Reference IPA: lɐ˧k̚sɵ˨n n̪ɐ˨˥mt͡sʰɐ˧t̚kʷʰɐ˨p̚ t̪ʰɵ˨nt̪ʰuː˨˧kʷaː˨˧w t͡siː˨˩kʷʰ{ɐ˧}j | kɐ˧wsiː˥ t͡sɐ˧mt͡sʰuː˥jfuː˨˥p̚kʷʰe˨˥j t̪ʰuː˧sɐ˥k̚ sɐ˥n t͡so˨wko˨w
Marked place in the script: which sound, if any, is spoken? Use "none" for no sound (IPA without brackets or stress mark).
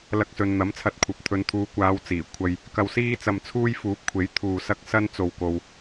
ɐ˧